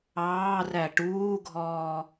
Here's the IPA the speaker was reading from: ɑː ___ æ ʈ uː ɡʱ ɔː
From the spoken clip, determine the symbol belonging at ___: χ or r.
r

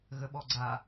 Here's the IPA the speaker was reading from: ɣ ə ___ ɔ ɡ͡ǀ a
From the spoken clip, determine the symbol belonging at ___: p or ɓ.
ɓ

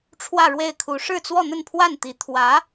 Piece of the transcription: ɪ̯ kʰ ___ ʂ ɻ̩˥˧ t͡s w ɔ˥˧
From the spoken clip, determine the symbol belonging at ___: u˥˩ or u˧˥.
u˧˥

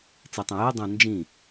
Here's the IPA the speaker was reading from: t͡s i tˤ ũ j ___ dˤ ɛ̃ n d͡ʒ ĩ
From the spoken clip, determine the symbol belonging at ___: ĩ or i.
i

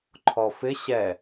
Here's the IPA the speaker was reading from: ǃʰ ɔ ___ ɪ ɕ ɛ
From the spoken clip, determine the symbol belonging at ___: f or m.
f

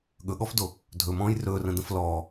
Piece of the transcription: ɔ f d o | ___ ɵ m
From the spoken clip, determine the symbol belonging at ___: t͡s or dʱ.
dʱ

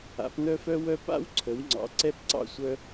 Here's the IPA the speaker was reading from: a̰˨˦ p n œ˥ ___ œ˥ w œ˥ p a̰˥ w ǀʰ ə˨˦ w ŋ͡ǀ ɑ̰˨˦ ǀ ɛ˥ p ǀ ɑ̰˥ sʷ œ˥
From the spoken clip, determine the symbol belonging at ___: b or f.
f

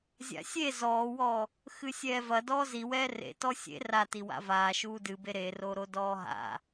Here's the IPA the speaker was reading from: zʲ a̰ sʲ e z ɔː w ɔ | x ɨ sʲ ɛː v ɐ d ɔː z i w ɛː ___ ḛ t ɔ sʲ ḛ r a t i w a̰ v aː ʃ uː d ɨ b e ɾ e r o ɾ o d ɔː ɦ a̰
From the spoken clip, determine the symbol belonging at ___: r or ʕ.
r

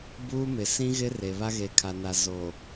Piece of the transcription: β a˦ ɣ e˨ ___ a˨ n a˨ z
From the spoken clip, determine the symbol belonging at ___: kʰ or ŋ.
kʰ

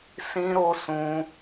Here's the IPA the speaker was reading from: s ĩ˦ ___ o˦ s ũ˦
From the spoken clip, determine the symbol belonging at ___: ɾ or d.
ɾ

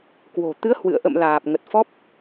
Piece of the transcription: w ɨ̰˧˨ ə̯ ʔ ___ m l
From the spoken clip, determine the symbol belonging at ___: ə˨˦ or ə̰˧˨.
ə̰˧˨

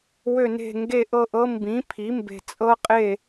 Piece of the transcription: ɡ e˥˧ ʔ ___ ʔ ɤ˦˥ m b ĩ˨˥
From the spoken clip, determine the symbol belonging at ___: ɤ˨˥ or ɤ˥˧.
ɤ˥˧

